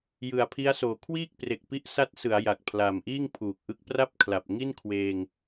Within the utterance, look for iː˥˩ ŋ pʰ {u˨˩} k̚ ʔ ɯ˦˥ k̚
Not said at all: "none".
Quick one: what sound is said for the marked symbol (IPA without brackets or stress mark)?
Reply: uː˨˩